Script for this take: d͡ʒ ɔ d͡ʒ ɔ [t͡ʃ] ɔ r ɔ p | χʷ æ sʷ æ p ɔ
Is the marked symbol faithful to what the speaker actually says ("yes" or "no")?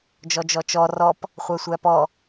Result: yes